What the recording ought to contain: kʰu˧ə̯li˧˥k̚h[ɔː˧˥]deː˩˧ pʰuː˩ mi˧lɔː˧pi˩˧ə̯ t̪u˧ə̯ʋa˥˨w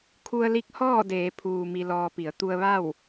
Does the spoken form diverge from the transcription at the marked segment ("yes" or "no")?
yes